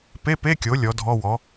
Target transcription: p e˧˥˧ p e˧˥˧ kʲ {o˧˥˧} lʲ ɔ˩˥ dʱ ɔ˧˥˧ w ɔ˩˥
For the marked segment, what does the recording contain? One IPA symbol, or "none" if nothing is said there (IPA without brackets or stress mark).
o˩˥